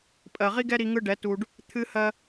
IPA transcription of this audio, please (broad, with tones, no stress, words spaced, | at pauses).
pʼɜ˨ʁi˦ɡɛ˦ɾi˧ ŋɯ˦ɖɛ˨˦tu˧ɖ | t̪ʰɨ˦ hɜ˦